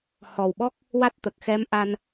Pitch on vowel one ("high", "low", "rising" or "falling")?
low